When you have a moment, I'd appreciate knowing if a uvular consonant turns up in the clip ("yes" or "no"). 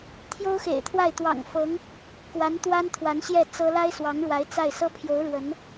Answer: no